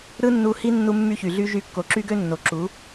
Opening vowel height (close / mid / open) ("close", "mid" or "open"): close